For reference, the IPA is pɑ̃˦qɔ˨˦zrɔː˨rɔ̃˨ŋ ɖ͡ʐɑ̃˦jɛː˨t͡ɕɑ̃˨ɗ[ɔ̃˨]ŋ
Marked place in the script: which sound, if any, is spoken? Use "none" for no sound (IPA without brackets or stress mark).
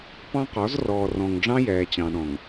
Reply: ɔ̃˨